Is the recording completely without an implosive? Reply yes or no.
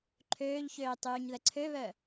yes